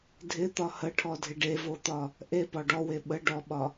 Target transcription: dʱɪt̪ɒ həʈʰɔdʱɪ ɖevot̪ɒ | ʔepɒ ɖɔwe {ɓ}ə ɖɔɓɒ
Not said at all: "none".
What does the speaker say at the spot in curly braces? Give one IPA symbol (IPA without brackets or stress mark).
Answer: ɓ